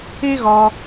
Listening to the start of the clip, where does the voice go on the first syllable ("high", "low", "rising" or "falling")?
high